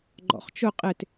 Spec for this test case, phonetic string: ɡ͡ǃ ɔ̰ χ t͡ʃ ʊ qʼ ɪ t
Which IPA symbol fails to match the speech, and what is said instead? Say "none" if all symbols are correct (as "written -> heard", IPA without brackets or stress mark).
none